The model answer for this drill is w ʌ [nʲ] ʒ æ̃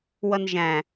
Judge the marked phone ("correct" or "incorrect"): incorrect